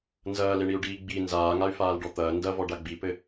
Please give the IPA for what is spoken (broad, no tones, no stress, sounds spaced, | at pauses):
n z ɐː l e ɳ i u̯ ɖ iː ɡ͡b i n z aː ŋ a y̯ f aː l ɖ ɔ t̪ ɐː n d ɐ v ɔ ɖ a ɡ͡b i p ɘ